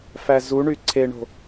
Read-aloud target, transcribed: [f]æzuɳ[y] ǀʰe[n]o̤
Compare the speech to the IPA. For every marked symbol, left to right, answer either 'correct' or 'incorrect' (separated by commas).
correct, correct, incorrect